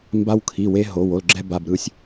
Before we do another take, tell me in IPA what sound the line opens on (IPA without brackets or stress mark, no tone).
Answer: m